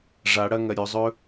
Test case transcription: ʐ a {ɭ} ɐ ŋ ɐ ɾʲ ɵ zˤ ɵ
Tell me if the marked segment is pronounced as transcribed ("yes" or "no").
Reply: no